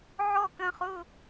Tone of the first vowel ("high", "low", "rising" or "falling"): falling